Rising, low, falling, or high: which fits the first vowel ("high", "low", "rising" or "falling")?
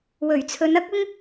low